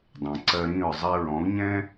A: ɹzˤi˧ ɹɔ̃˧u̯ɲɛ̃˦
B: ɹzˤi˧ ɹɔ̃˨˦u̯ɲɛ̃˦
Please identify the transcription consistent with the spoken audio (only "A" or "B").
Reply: B